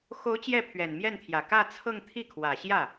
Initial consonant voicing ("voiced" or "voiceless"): voiceless